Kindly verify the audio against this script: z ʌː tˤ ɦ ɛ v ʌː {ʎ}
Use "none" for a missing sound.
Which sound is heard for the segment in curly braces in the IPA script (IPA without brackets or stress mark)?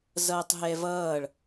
ɭ